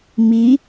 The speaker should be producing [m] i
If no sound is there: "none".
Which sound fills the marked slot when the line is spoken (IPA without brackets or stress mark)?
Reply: m